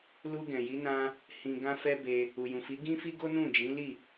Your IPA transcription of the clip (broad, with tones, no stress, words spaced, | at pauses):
lu˧ ɡɛ̃˨ji˨˦ nã˧ | hĩ˧ɡã˦ fɛ˦be˧ | u˨jũ˨fi˨˦ ɡĩ˦fi˦ ɡo˦nũ˦˨d͡ʒĩ˨˦li˦˨